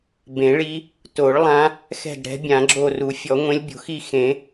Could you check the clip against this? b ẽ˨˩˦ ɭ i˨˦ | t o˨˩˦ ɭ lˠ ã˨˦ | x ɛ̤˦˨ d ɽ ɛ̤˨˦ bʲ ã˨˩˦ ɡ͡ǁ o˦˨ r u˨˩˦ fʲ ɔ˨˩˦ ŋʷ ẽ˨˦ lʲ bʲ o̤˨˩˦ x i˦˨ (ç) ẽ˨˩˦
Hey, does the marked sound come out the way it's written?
no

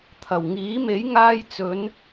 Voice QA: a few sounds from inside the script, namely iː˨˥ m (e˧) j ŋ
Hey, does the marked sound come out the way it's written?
no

